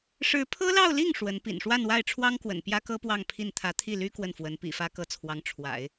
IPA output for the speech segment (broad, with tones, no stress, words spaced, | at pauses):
ʂɻ̩˧˥pʰɤ˥lɑ˥˧ʊ̯li˥˩ŋ ʂwə˧˥n pḭ˨˩nʂwa˥˧nwa˥˩ɪ̯ʈ͡ʂʰwɑ˥ŋ kwə̰˨˩npjä˥kɤ˥ pwɑ˥˧ŋpʰi˥˩n t̪ʰä˧˥t̪ʰi˥˩ly˥ kwə˥˩nfwə˧˥n pḭ˨˩fä˧˥ kɤ˧˥t͡sʰwɑ˧˥ŋ ʈ͡ʂʰwa̰˨˩˦ɪ̯